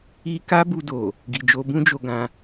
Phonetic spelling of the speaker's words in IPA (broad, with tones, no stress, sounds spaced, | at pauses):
i˦ k a˦ b u˧ d o˨ | ɡ i˨ d͡ʒ o˧ b ũ˦ d͡ʒ o˧ ɡ ã˧